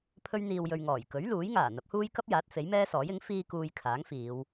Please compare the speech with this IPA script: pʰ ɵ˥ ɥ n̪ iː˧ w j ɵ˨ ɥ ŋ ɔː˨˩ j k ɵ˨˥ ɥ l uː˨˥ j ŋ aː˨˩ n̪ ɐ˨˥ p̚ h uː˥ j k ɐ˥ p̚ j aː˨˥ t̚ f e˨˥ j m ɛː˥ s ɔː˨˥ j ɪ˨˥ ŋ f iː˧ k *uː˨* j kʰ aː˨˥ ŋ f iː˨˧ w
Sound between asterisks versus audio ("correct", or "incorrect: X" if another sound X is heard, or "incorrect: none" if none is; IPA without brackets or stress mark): correct